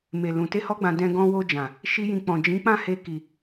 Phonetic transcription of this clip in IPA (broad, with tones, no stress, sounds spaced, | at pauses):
m e˨ l ũ˨ t e˧ h ɔ˧ ɡ͡b ã˨ d ɛ̃˧ ɡ ɔ̃˧ w o˧ d͡ʒ ã˨ | ʃ i˦ j ĩ˧ k͡p ɔ̃˨ d͡ʒ ĩ˨˦ k͡p ã˦˨ h e˧ k i˨